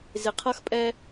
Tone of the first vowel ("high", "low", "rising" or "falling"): low